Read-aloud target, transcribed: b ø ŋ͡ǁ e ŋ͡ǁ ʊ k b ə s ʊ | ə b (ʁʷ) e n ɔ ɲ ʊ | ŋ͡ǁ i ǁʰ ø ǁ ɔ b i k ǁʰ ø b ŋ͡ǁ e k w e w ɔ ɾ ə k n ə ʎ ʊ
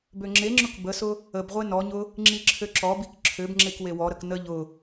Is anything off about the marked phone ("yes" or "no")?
no